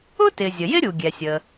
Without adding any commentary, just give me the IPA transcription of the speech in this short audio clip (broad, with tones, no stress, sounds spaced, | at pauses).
ʊ˥ t ɪ˩ zʲ ə˩ j ɪ˥ ɾʲ u˩ ɡʲ ɛ˩ sʲ ə˩